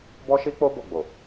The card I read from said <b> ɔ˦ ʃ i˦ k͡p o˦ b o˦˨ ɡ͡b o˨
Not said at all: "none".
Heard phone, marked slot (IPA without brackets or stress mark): b